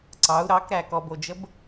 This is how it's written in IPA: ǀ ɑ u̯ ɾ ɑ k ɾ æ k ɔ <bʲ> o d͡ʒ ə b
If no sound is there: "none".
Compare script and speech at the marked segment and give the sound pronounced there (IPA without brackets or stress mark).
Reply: b